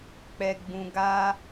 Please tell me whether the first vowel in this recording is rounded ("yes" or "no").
no